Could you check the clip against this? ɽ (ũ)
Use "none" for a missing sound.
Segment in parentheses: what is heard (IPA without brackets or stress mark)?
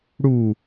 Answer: u